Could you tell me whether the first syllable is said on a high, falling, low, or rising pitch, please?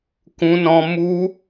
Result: high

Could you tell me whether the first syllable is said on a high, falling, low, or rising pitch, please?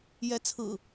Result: rising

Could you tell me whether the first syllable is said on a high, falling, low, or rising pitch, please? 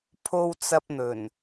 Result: low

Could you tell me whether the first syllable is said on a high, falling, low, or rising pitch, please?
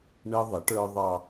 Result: high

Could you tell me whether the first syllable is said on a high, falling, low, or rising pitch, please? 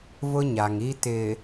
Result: high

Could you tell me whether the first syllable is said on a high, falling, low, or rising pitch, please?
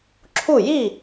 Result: falling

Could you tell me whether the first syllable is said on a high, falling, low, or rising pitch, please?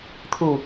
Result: low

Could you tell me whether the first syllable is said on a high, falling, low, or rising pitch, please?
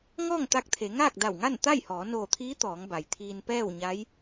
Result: falling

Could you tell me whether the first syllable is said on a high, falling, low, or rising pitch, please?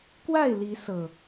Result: falling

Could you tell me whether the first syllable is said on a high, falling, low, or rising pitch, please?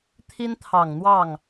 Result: high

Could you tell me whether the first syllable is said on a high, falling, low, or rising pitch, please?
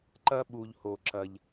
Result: high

